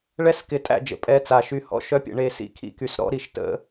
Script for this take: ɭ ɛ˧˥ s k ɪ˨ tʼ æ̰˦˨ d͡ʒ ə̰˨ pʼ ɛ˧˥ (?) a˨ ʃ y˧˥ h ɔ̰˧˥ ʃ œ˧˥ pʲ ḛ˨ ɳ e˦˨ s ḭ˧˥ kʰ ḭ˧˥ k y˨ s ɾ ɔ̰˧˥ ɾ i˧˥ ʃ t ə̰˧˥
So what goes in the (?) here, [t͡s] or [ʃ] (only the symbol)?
t͡s